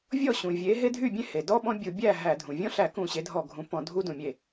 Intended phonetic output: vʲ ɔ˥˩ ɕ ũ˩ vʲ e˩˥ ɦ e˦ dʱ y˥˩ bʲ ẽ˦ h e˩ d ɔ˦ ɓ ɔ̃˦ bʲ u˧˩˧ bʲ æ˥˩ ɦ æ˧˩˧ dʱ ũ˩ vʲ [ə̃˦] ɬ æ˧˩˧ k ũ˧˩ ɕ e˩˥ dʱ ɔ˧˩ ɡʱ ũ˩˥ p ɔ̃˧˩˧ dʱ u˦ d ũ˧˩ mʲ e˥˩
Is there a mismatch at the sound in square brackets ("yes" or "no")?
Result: yes